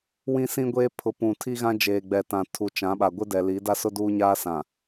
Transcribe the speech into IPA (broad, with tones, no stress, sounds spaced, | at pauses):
w ĩ˦ s ĩ˦ ɡʷ eː˦ pʰ ʊ˨˦ p ũ˨ tʰ i˦ ɣ ã˦ d͡ʒ eː˨ ɡ͡b ɛ˨ t ã˨ tʰ u˨ t͡ʃ ã˨˦ ɓ a˨ ɡʷ ɪ˦ d ɛ˨ l i˨˦ d a˦ s ʊ˦ d uː˦ ɲ aː˦ s ã˨